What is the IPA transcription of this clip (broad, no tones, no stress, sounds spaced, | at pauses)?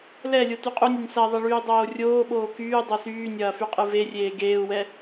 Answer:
l ɛ lʲ o t y qʼ u nʲ e nʲ s ɐ ðˤ ɐ ɭ yː dˤ oː rʲ oː ɓ oː k yː dˤ o s yː nʲ ɐː f y qʼ ɨ v e rʲ eː ɡ eː u̯ w ɛ